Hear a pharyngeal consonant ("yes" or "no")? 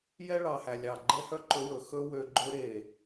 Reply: no